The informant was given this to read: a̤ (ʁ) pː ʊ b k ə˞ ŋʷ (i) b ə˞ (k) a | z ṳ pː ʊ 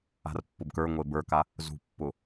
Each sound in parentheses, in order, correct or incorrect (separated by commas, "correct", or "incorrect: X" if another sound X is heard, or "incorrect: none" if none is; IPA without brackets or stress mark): incorrect: r, incorrect: e, correct